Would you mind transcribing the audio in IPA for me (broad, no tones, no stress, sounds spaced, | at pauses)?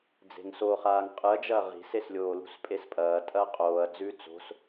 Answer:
d͡z e̤ ŋ s o χ aː ŋ qʼ ɨ ɐ̯ d͡ʒ ɐː ʁ i̤ s e s lʲ oː l ṳ s pʼ e s pʼ ɐː tʼ ɐː qʼ oː ɐ̯ d͡z ʉ t͡s o̤ s